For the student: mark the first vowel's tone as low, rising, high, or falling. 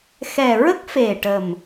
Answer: low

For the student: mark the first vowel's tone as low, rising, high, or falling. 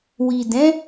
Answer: low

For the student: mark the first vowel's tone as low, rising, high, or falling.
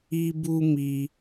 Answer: high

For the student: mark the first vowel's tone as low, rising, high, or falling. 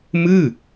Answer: falling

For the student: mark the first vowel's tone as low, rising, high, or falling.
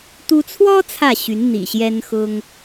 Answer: high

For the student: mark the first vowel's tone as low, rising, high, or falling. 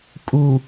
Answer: low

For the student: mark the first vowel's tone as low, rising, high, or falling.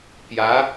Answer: rising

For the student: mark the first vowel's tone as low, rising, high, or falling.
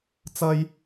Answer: high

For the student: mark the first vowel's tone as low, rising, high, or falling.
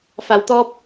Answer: low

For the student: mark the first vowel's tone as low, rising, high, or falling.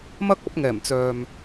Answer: high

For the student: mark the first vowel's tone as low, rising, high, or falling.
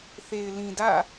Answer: low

